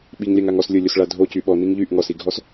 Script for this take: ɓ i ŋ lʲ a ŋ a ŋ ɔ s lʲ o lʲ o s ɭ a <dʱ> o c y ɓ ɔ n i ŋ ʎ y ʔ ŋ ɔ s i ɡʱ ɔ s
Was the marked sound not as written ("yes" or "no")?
no